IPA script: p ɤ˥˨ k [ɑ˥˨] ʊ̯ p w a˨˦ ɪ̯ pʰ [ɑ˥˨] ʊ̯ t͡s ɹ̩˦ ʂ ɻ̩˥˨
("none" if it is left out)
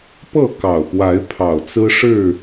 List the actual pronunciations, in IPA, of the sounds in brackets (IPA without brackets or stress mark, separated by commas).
ɑ˨˩, ɑ˨˩